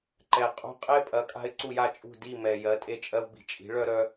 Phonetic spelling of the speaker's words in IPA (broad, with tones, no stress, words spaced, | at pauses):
ǃɛ˨˩qʼṳ˦ qʼe˦pʼɐ˨˦ kʼa̤˦ɪ̯ǀu˦˨ja˦˨ t͡ʃʼṳ˦˨di˦˨ mɛ˨˩ jɜ˨˦ tʼe˦t͡ʃʼɜ˦vbi̤˨˩ t͡ʃʼi̤˨˦ɭœ˦ ɾœ˦